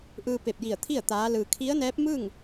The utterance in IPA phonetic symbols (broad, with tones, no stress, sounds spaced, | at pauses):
ʔ ɯː˧ p e˧˩ p̚ j i˧˩ ə̯ t̪ʰ i˥˨ ə̯ t̪ aː˧˥ l ɯː˧ kʰ i˧˥ ə̯ n ɛː˧˥ p̚ m ɯː˥˨ ŋ